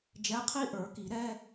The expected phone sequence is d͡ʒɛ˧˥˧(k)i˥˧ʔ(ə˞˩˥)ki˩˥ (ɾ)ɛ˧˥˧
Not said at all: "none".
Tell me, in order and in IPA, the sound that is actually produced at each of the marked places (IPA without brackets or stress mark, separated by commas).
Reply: qʰ, ə˞˩˥, ɾ